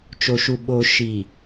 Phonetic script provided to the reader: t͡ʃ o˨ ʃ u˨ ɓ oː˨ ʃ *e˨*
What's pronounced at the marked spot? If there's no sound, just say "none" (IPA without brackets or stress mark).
i˨